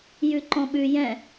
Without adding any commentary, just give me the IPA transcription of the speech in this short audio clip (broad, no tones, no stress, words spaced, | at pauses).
jʉǃɔ̃ɓʉ jɛ̃